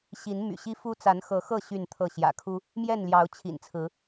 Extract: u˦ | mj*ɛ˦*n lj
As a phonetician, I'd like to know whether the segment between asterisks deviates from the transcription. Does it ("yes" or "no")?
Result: yes